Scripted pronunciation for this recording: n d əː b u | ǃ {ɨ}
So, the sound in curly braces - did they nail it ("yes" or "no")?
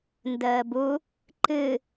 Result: yes